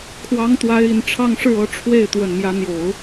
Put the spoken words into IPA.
kʰwɑ˧˥ŋt̪wa˧˥ɪ̯ i˨˩nʈ͡ʂʰɑ˥˧ŋʂɻ̩˥˩ ɤ˧˥ ʈ͡ʂʰwe˥˩ɪ̯ t̪wə˨˩nmjä˧˥n̪jo˨˩˦ʊ̯

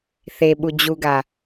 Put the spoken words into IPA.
θeɓu d͡ʑuɡa

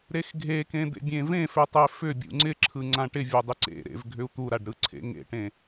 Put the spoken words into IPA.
ɾexɡʱekẽ d̪ḛbʲẽvẽfʏ tˤefʏbʲṵ ŋ͡ǀɪǁʰɯ ŋ͡ǀãʈɪvʲɵ dˤɪǀḛɾḛv ɡʱʏu̯t̪uɾaɖ ɾɯǀʰḛŋḛʈẽ

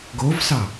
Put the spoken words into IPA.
ɡovsɑ

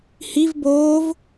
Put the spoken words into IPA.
hiv boːv

